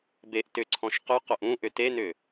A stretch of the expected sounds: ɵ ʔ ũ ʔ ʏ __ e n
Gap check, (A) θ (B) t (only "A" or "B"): B